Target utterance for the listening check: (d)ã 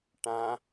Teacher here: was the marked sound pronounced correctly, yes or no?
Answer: no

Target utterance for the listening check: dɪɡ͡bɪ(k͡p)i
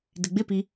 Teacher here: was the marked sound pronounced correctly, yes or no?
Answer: no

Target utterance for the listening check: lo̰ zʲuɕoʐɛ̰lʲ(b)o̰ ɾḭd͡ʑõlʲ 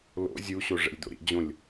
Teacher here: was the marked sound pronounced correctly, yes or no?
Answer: no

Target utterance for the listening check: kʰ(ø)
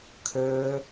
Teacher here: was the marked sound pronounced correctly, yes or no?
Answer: yes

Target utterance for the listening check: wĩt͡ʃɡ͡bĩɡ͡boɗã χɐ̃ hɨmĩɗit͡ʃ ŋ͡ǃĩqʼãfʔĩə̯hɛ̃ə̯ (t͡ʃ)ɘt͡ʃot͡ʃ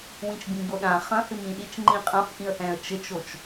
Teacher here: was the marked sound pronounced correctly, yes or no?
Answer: yes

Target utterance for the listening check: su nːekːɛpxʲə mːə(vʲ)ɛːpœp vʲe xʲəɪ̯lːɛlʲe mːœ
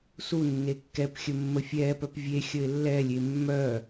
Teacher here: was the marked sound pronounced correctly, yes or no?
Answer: no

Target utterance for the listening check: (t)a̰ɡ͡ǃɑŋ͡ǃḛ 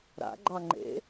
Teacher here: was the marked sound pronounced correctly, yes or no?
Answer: no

